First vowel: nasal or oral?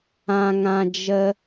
nasal